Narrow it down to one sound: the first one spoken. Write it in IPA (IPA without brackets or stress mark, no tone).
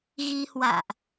ɣ